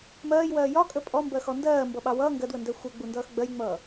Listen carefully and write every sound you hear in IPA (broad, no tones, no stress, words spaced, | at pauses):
mɜːjwɜː jɒkʼə pʼɔmbɜxɔ ndɜːmbʌɓɑ wʌː ŋɡɜdwəndæ xʷɜɡ͡bundʌːx ɡ͡bɜjŋ͡mʌː